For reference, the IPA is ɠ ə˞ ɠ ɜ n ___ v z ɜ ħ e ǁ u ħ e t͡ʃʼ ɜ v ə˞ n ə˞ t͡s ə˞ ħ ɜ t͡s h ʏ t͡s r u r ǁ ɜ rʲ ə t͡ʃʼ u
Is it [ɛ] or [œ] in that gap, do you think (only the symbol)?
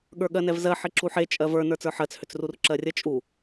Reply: ɛ